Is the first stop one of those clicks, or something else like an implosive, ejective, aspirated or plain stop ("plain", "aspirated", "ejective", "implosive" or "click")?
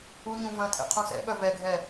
aspirated